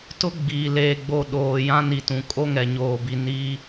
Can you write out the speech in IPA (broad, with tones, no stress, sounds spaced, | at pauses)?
t ʊ˦ ɡ͡b iː˨ l eː˨ ɡ͡b o˨ ɗ oː˨ j ã˦ n i˨ t ũ˨ kʼ o˦ ŋ ɛ˨ ɲ oː˨ b i˨ n iː˦